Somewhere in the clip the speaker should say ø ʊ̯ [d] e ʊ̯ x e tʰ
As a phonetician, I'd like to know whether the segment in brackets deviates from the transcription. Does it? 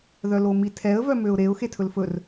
yes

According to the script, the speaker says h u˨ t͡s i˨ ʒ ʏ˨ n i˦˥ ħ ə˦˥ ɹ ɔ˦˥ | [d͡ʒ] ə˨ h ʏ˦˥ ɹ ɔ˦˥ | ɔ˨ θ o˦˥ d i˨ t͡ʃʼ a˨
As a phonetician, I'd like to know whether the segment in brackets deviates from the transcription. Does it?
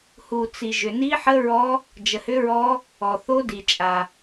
no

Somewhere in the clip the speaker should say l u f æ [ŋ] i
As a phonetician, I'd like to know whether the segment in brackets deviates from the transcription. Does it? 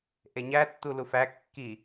yes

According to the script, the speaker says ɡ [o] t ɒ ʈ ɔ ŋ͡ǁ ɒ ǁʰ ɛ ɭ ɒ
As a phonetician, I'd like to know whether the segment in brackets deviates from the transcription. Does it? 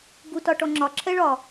yes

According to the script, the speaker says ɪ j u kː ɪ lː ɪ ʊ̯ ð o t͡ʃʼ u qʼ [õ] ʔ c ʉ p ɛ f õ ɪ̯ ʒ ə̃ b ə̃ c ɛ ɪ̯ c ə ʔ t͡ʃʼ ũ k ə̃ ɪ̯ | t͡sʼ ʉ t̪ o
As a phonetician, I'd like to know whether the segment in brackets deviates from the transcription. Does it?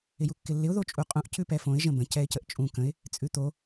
yes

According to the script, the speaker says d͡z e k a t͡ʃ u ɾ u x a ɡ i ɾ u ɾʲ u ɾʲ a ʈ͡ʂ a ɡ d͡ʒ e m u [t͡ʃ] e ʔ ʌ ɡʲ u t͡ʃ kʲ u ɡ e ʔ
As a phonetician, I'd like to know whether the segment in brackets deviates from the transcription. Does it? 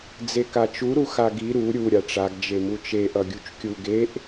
no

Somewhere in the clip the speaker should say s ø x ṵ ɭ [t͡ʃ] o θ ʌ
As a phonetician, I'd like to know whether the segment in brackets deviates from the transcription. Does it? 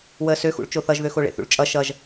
no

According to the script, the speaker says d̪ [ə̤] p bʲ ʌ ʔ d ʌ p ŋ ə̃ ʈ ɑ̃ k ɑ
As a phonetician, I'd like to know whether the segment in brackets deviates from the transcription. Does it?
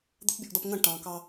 no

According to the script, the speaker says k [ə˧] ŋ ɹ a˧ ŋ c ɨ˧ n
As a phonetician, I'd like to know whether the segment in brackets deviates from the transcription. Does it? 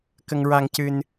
no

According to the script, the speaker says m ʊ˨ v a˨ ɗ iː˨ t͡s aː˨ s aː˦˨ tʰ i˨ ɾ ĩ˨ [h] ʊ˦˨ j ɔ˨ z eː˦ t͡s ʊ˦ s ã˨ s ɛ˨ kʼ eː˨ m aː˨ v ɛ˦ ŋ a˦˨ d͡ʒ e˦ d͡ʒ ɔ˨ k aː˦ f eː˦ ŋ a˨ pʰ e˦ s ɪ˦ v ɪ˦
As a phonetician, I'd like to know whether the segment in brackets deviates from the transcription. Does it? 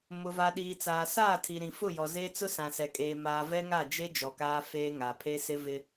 yes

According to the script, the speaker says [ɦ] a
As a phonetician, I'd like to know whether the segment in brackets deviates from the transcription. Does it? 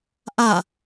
yes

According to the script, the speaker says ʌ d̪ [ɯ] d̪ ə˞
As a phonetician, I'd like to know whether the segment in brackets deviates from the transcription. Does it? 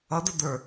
yes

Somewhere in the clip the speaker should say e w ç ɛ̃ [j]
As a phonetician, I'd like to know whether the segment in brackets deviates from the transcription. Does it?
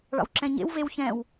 yes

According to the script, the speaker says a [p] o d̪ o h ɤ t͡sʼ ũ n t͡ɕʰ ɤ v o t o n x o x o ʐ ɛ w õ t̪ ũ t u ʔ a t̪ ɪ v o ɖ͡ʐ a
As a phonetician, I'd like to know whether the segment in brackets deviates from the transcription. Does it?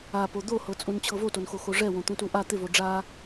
no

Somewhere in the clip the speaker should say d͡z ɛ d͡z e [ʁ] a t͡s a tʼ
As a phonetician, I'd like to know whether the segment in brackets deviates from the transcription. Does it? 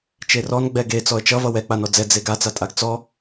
yes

